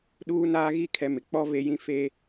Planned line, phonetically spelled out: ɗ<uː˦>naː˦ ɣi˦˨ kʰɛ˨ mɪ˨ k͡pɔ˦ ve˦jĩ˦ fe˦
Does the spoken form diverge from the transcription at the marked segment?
no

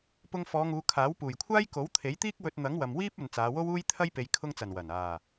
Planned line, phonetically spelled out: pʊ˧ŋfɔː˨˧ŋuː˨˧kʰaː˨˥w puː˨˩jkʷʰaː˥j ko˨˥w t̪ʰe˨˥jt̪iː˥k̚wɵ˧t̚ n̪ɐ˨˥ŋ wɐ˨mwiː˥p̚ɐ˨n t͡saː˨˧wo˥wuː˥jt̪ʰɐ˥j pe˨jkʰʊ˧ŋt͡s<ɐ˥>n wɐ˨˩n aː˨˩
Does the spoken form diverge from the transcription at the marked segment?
yes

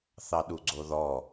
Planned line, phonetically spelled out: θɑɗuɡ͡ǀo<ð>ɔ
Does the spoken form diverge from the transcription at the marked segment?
no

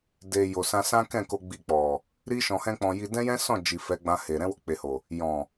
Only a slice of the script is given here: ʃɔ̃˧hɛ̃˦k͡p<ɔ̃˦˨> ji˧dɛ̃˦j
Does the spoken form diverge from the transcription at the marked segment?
yes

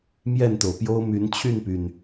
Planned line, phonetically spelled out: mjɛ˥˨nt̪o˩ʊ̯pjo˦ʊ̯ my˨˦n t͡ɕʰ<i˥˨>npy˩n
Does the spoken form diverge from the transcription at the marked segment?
yes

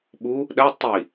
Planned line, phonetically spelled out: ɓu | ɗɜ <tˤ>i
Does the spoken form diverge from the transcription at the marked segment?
no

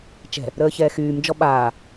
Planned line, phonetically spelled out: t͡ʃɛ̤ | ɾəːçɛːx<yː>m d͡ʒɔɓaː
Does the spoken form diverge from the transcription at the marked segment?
no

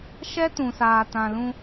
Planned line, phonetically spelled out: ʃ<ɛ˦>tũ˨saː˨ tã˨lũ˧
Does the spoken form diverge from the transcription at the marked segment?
no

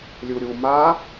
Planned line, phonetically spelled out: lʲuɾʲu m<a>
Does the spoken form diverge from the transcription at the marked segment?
no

